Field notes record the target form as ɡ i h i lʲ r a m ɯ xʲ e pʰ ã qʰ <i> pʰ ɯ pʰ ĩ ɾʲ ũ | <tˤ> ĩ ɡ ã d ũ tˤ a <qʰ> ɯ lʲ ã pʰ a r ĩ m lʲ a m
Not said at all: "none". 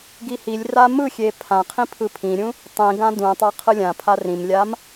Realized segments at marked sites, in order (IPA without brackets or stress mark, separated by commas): ĩ, tˤ, qʰ